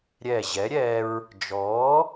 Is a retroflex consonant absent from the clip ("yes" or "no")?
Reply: yes